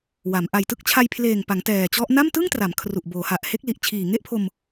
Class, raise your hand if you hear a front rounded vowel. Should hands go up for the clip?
no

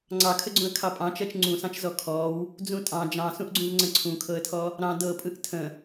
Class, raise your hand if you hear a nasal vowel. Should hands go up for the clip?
yes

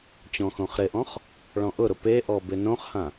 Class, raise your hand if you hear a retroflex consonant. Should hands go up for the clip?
yes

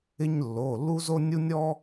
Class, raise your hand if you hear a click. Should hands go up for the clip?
no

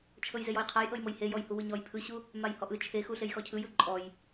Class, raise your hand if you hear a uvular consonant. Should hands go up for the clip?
yes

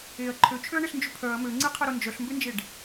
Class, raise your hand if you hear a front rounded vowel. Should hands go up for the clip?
yes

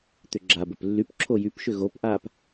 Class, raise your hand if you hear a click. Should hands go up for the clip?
yes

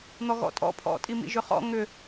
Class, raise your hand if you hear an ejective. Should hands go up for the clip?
yes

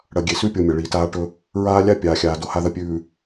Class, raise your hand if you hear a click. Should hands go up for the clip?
no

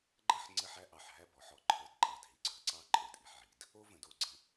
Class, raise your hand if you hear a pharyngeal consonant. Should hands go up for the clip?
yes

